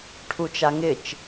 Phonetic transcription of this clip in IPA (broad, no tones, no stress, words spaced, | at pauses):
ʈʰut͡ʃaŋɪt͡ʃ